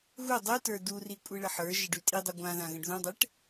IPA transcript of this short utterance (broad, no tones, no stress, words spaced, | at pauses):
ɣu dˤʉtə˞ duri kʷʼiɭəħə˞ʒə ɖʉtʼidˤu ɡʷãðã ɣə̃ɖðũdˤɛʈ